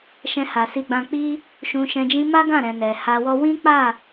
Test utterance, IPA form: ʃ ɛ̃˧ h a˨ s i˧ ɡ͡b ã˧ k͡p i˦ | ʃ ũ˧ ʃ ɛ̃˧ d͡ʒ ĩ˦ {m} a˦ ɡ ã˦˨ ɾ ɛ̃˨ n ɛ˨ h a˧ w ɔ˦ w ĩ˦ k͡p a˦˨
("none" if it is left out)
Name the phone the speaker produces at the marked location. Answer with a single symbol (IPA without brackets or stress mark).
m